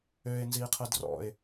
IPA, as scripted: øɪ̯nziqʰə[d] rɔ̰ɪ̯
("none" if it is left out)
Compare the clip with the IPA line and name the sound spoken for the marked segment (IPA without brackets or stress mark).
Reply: d